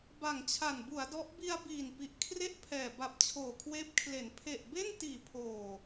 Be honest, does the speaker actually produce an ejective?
no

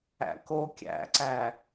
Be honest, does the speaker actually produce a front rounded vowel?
no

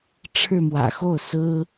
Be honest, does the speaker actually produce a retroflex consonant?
yes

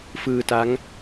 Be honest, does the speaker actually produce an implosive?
no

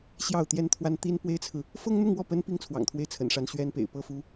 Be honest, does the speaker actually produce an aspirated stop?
yes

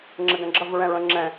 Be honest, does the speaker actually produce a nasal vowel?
yes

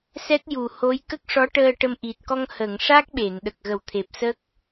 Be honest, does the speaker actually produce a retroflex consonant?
yes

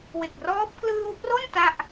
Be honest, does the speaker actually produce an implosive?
no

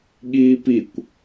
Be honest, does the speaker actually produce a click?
no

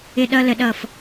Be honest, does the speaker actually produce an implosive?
yes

